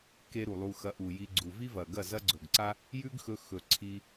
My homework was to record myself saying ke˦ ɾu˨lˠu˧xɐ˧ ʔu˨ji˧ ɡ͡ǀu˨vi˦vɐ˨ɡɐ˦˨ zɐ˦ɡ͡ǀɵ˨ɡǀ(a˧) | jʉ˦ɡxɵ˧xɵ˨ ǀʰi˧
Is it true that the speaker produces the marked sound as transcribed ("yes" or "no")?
no